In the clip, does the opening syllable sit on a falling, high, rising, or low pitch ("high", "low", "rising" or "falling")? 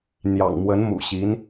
low